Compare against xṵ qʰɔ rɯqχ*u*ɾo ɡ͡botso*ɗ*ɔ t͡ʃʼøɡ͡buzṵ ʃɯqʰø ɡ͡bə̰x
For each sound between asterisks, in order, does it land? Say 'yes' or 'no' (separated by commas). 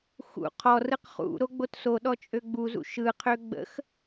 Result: no, yes